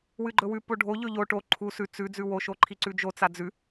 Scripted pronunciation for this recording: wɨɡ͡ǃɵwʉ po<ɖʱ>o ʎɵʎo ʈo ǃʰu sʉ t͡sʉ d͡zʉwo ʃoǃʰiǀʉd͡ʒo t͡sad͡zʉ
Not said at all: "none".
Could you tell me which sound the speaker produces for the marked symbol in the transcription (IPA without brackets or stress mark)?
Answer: ɖʱ